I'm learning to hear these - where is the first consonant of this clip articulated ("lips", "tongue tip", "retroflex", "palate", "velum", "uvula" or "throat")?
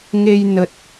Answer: velum